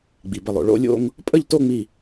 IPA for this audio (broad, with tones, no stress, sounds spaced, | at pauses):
ɡ͡b i˩ b ə˧˩ lˠ o̰˩ ɭ o̰˥˧ lʲ o̰˥˧ ŋ | pʼ ə˥˧ ʎ t o˥˧ ŋ͡m i˧˩